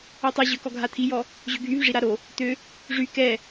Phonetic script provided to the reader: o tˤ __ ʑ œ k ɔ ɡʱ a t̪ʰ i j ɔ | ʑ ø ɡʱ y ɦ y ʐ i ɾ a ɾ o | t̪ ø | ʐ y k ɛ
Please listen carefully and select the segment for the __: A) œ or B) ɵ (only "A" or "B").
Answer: A